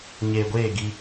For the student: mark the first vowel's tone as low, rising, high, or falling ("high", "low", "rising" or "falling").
low